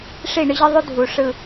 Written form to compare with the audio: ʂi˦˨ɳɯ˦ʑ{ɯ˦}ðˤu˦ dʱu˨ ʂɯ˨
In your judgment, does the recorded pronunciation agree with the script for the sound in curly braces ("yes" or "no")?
yes